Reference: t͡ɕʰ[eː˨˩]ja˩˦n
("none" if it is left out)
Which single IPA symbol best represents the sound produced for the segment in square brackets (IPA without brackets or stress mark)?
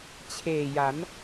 eː˨˩